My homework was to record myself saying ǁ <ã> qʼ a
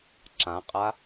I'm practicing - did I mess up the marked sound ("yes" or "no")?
no